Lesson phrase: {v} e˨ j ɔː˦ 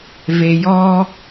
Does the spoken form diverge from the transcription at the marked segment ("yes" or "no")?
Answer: no